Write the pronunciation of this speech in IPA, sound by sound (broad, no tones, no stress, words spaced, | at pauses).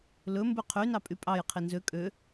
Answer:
lɵ mbʉqʰynɑ pʼypʼɑj qʰinzø kʼø